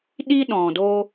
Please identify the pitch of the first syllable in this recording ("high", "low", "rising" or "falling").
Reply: high